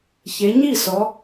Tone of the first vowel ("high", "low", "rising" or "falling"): rising